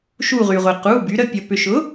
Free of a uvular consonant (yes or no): no